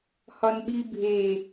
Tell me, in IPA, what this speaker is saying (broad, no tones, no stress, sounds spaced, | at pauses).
h ɒ n ɓ i bʱ e